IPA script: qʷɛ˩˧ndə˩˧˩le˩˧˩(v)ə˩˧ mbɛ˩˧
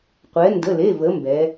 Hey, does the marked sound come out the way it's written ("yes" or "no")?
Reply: yes